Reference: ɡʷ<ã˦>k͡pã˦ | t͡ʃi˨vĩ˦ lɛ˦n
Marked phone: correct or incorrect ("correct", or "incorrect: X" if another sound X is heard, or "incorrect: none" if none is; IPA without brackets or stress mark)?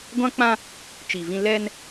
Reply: correct